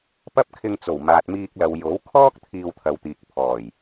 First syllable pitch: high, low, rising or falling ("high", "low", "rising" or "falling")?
high